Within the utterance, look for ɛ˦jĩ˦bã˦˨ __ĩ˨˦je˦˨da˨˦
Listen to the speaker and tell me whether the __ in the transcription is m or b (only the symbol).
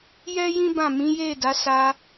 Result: m